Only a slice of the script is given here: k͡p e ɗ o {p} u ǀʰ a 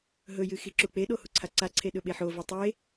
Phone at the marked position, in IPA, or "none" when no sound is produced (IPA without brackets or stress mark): h